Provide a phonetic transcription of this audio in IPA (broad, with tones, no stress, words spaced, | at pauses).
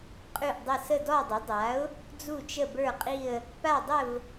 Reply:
qʼʉ˦˨ʔdˤə˦˨ sə˦˨dɔ˦˨dˤə˩˥dˤa˩˥ʊ̯ | d͡zu˦˨t͡ʃə˦˨bə˞˦˨qʼi˦˨ə̯ | pa˦˨dˤə˦˨v